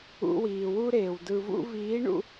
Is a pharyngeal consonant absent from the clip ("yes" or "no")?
yes